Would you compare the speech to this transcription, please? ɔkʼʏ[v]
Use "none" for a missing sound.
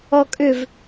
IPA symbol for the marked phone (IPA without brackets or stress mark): v